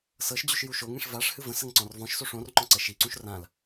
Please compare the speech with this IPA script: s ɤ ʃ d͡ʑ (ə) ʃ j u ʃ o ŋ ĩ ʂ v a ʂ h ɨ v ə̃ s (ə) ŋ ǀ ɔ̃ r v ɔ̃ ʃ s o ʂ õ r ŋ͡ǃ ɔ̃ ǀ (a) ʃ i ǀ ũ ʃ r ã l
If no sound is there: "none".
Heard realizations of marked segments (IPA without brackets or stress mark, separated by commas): ʉ, ə, ə